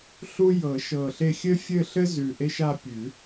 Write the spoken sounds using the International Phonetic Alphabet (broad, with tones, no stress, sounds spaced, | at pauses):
ɬ u˦ j ɤ˨˩˦ ʃ ɤ˨˩ ɬ e˦˨ xʲ ɘ˦ fʲ ɘ˦˨ ɬ ɘ˦ z ʉ˨˩ ʔ e˦ ʃ a˦˨ pʲ ʉ˨˩˦